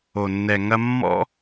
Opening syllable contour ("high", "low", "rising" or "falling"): low